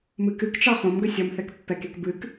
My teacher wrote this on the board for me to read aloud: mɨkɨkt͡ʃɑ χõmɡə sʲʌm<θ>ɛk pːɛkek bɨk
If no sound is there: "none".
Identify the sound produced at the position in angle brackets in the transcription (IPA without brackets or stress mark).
θ